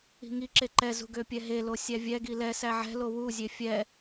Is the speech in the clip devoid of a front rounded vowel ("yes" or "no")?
no